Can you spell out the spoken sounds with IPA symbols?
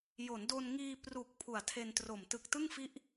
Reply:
j o˩˦ n d o˧ n ŋ iː˧ p r u˨˩ k̚ pʰ u˨˩ a̯ tʰ e˧ n t r o˨˩ m t ɯ˨˩ k̚ t ɯ˥˩ ŋ f i˦˥ ʔ

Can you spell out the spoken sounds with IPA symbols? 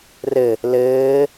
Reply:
r ɘ | l ɘː

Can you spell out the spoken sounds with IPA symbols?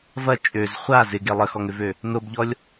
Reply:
v ɐ t͡ʃʼ ø z χʷ a z ɪ ɡ e lˠ ə x ɔ ŋ ʏ v ø | n o b ʎ ɔ lʲ

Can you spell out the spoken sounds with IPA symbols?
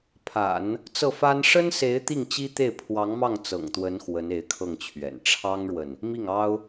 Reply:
pʰ a̰˨˩˦ n | t͡s ɤ˥˩ f a˥ n ʂ ə˥ n s e˧˥ ɪ̯ t̪ i˥˩ ŋ t͡ɕ i˥ t̪ e˥˩ ɪ̯ pʰ w ɑ˧˥ ŋ m ɑ˥˩ ŋ t͡s ɤ̰˨˩ ŋ t̪ w ə˧˥ n x w ə˧˥ n e˧˥ ɪ̯ kʰ ɤ˥˩ ŋ t͡ɕʰ ɥ ɛ̰˨˩ n ʈ͡ʂʰ ɑ˥ ŋ ɻ w ə˨ n | m i˥˩ ŋ ɑ˥ ʊ̯

